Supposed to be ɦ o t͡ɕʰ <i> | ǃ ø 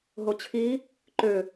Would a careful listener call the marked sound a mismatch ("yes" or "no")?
yes